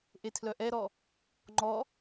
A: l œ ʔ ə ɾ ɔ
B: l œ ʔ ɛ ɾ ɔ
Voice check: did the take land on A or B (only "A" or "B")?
B